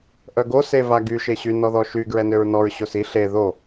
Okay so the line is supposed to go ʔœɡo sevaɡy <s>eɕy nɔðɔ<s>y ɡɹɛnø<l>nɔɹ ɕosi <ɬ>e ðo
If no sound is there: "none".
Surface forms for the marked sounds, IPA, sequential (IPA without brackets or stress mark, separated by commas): ʃ, ʃ, ɹ, ɬ